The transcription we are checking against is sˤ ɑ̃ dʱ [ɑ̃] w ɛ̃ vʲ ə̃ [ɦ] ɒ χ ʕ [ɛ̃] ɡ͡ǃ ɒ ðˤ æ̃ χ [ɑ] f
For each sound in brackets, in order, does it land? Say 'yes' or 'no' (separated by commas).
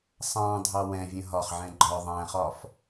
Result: no, yes, yes, no